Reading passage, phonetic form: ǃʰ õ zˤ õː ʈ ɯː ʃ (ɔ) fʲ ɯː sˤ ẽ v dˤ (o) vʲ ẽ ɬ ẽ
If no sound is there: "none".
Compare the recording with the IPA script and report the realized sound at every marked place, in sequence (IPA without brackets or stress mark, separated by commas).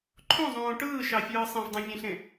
ɑ, õ